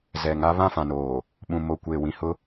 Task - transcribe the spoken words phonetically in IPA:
zɛ˨ŋa˦ βã˦˨fã˨noː˨ | ɓũ˨mo˨kʷeː˨ wĩ˨hʊ˦

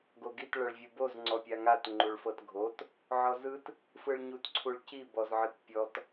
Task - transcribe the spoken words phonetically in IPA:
ɡoɡit ɭɤɭvʲuboz ŋ͡ǀɔpʲaŋat ŋ͡ǃuɭfɤtɡʱot | ʕɔzɯt | fɯɭɲutǀʰuɭci bɔzʕɯtpʲɔt

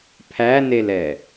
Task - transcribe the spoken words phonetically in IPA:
pʰænelɛ

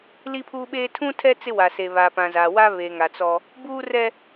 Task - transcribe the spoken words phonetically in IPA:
li˦pʰuː˦ɓeː˦ tʰũ˦tʰɛ˦ t͡sɪ˦wa˨se˨ βa˨pã˨za˨wa˦ βe˨ ŋa˨t͡sɔ˦ | buː˦rɛ˦

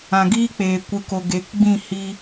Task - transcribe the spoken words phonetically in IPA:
ã˨ɡiː˦k͡peː˨ kʷɨ˨ko˨ ɡe˨˦kɡ͡bĩ˦˨ hi˧

